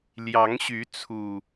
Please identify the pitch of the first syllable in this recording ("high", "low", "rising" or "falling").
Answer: rising